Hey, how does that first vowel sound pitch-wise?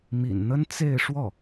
low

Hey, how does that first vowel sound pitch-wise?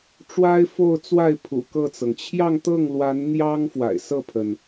high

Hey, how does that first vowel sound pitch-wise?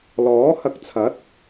rising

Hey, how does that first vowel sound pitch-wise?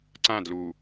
falling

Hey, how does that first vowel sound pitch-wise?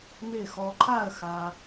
falling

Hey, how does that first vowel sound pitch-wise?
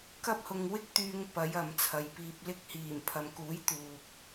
high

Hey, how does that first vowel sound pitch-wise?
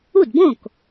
falling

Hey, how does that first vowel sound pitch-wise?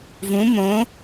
rising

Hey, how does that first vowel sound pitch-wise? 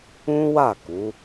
high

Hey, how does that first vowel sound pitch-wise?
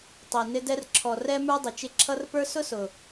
low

